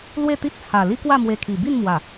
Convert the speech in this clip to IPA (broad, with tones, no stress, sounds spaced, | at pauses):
l w e˥˧ t̪ i˦ t̚ t͡sʰ a˨˩ l i˦ k w a˥˧ m w e˧ kʰ i˨˩ b i˥˧ n m w a˨˩